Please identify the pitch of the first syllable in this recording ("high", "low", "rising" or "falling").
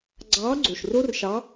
rising